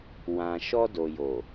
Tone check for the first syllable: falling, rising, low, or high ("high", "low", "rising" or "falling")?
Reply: low